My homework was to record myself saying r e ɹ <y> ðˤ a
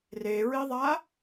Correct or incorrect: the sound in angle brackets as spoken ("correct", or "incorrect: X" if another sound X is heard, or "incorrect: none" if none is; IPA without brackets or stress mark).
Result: incorrect: i